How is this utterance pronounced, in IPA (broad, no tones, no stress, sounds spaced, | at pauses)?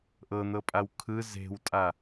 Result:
ʔ ɤ n̪ ɤ pʼ a w kʰ ɯ z e̤ w tʼ a